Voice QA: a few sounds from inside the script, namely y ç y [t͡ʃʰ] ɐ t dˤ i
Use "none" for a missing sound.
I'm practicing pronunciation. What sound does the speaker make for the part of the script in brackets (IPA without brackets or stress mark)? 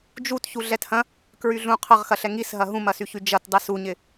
d͡ʒ